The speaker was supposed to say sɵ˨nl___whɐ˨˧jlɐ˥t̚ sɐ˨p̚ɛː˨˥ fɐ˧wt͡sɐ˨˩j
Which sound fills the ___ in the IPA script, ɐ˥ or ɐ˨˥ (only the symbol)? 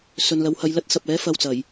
ɐ˨˥